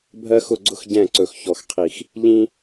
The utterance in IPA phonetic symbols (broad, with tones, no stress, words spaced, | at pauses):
bʱɜ˦xʊ˦˨ɡ͡ǀʊ˦x ɟɛ̃˦˨ǀɵ˨xçɔ˨xqʰi˨x | ʎĩ˦